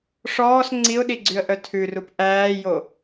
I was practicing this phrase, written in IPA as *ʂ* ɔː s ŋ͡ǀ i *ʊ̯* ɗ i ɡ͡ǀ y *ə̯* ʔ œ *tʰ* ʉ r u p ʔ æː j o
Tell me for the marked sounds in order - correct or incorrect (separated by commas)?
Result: correct, correct, correct, correct